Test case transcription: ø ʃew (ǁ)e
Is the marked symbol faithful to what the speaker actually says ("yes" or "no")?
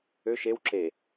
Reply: yes